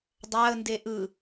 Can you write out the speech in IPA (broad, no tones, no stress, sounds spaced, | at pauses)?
dˤ a ə̯ n d e ʔ ɯ